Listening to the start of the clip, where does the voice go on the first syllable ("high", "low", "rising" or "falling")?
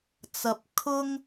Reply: low